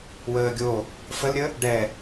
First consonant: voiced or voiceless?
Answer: voiced